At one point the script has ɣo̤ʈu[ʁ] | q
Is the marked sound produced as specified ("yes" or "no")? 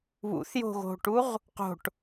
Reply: yes